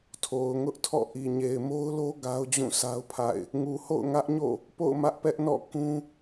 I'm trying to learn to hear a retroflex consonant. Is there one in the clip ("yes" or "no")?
no